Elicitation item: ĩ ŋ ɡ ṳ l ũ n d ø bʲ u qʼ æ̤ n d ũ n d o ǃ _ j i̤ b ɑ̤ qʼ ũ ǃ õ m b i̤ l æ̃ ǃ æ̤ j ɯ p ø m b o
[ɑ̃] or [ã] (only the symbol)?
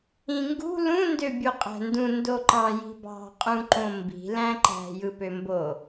ɑ̃